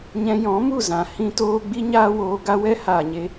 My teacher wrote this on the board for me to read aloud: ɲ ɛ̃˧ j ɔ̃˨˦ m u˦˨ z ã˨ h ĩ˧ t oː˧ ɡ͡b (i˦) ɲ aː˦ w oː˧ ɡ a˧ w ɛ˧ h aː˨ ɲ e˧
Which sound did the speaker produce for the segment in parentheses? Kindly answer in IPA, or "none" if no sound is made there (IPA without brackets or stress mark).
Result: i˦